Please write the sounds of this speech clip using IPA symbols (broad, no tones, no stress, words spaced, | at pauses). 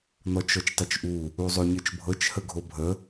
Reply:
n̪ɔt͡ʃɔt͡ʃtˤɵt͡ʃʔu | uzˤoɲɯt͡ʃbʱɤt͡ʃ həɡʱobʱə